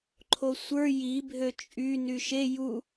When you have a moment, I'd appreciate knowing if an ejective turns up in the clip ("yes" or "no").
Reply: yes